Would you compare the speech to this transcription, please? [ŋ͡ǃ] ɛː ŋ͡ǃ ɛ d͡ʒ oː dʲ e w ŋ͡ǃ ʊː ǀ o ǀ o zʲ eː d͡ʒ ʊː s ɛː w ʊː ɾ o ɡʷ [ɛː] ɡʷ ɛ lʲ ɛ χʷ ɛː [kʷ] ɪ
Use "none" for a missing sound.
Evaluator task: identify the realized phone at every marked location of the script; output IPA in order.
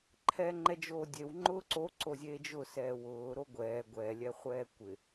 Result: ǃʰ, ɛː, kʷ

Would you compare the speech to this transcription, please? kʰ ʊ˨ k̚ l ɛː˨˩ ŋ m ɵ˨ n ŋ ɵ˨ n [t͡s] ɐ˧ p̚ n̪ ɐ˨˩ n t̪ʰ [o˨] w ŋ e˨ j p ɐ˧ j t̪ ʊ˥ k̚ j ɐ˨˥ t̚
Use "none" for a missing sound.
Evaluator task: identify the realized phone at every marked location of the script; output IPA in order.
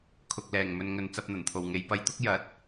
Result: t͡s, o˨˩

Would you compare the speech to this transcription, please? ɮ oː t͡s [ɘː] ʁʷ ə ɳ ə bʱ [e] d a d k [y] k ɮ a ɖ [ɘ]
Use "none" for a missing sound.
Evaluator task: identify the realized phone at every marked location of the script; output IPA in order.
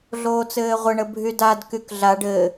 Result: ɘː, y, y, ɘ

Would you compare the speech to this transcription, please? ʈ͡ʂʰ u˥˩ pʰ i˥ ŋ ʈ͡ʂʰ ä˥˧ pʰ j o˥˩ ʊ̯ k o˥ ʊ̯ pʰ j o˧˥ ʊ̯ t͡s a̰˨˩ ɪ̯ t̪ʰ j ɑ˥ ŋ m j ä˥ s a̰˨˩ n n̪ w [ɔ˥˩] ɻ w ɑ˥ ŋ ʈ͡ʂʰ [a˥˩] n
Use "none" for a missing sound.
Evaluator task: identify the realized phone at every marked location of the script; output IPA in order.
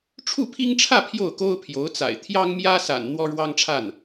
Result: ɔ˥, a˥˩

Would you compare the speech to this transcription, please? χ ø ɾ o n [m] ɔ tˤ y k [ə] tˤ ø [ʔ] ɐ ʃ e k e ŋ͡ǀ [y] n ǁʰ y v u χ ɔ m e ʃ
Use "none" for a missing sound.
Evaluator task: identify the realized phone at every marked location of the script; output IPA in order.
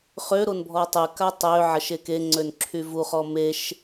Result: bʱ, a, ʕ, ø

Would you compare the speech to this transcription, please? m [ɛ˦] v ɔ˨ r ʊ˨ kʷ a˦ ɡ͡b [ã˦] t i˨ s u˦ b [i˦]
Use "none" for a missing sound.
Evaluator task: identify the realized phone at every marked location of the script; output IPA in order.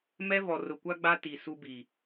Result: ɛ˦, a˦, i˨

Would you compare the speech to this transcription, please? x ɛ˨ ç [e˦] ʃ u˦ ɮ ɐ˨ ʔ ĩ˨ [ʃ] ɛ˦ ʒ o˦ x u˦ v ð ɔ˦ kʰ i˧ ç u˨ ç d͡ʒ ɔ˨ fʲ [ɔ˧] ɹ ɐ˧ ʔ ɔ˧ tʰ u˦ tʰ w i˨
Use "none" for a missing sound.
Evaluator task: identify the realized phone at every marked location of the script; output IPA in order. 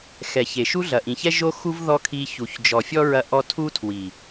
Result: e˨, ç, ɔ˦

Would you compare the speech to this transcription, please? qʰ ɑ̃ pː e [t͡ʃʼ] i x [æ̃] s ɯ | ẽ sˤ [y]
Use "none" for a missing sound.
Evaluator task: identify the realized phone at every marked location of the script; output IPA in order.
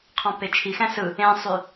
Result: t͡ʃʰ, æ̃, y

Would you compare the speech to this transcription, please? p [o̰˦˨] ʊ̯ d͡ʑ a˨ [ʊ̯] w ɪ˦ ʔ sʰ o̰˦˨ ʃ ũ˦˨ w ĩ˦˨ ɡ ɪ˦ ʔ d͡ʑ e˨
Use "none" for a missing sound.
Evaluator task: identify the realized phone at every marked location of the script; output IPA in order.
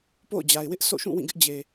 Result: o̰˦˨, ɪ̯

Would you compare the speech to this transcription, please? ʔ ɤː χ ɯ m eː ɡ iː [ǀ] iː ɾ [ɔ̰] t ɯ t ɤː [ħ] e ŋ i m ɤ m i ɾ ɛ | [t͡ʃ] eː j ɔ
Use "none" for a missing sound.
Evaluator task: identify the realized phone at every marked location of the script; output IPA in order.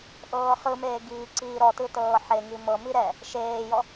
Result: ǀ, ɔ, ħ, ʃ

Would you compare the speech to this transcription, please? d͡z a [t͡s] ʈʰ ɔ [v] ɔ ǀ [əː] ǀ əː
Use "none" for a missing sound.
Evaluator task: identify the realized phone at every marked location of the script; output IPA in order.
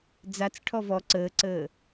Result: t͡s, v, əː

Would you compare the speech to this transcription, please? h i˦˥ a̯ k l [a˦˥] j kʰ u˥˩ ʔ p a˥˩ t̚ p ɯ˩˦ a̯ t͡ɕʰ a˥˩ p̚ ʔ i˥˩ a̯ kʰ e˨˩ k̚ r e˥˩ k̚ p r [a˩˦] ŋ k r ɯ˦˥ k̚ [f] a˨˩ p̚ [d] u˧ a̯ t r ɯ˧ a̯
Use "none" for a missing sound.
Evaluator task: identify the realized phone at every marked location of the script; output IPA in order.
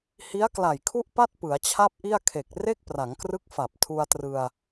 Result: a˨˩, a˩˦, f, tʰ

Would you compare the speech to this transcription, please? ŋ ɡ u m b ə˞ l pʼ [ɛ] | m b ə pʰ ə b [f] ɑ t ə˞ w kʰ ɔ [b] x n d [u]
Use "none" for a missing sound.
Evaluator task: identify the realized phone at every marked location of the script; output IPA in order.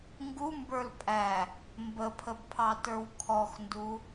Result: æ, pʰ, none, u

